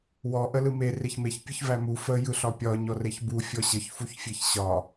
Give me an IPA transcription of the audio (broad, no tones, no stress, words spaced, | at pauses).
wɔ ʔəlɯme reçmeç pʲɯçvæmu fə jɯɬɒpʲɒ ɲɔreçbu fʲɔɕəç fuçfʲeçɕɒ